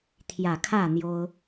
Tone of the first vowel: low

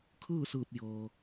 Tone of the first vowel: falling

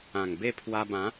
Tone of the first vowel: low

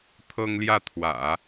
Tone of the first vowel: high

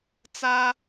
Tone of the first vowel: high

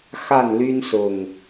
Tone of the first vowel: falling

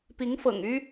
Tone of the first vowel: rising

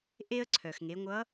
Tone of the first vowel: high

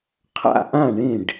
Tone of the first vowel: falling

